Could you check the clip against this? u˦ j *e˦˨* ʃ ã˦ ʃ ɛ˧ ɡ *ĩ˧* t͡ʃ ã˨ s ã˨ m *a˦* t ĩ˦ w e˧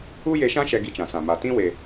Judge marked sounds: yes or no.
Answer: no, no, no

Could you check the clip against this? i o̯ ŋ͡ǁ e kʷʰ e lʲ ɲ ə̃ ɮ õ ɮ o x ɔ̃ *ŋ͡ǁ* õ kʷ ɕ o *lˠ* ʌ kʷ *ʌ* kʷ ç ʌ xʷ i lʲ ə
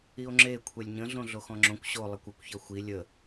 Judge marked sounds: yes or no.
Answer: yes, yes, yes

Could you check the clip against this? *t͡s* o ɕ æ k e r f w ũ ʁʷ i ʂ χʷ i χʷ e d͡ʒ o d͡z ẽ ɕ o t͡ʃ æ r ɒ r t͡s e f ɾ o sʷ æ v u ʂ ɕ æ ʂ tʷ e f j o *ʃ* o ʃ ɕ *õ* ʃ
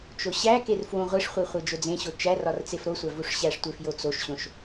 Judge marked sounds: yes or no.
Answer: no, no, yes

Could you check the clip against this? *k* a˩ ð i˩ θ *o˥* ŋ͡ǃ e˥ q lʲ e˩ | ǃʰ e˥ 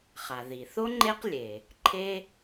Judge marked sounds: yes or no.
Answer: no, yes

